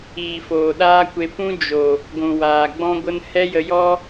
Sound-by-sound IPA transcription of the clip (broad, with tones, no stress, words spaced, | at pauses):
iː˨foː˨ɗaː˦kʷe˧ pũ˦ d͡ʒo˨ | ɡʷũ˨waː˨ɡ͡bɔ̃˦ɡʷə˦n hɛ˦jə˧jɔ˦